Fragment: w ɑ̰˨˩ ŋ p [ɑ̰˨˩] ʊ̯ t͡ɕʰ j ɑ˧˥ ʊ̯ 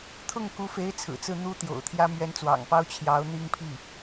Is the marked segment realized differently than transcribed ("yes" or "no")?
yes